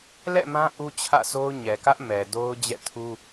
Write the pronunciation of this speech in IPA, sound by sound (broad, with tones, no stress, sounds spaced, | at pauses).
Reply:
l ɛ̰˦˨ m ã˦ ʔ u˦ t͡ɕʰ ä̰˦˨ sʰ o˦ ʊ̯ ɲ ɛ˨ k ä˦ ʔ m ɛ˨ d o˦ ʊ̯ d͡ʑ ɛ̰˦˨ tʰ u˦